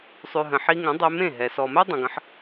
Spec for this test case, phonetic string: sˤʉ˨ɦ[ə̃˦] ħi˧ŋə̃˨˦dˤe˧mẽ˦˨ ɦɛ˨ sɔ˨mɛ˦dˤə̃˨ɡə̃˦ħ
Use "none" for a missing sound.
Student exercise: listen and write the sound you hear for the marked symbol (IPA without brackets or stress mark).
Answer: ə̃˨